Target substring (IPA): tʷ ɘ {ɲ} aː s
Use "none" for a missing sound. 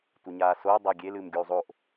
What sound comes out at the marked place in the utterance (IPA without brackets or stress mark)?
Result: ɲ